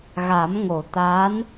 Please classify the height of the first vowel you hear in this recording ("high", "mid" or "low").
low